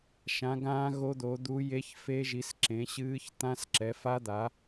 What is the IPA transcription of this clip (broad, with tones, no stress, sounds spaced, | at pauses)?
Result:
ʃ ã˨˥ ɡ ãː˦˥ ɣ o˦˥ d̪ o˨˥ d̪ u˦˥ j e˦˥ ç f e˦˥ ʒ i˨˥ s ǁ ẽ˨˥ ɕ ɨː˦˥ ç t̪ ã˦˥ s ǁ ɛ˨˥ f a˦˥ d̪ a˨˥